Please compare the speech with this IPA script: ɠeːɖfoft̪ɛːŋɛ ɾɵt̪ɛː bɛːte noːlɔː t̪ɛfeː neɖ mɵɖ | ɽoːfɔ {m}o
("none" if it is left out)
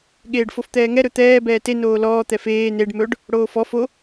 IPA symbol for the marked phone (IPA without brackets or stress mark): f